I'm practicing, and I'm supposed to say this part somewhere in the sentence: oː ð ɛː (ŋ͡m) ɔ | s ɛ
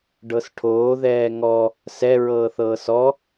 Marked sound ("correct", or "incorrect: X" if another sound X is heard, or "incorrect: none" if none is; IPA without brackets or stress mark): incorrect: ŋ